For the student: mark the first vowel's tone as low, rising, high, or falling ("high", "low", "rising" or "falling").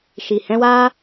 low